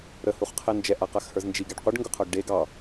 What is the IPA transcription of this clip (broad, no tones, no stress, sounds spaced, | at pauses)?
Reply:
ɾ ə h u χ qʰ ɛ n d͡ʒ ɛ ʔ a q a x h ə˞ z n d͡ʒ i ɡ ɛ ɖ qʷ ə ɖ ŋ ɡ ʊ qʰ ə˞ ɡ ɖ e ɡ ɑ